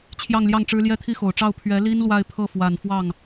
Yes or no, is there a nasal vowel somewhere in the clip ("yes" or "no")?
no